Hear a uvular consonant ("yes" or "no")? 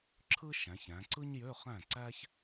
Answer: yes